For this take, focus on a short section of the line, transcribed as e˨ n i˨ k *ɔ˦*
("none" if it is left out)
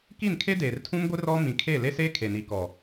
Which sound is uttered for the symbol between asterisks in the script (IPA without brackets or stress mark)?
ɔ˨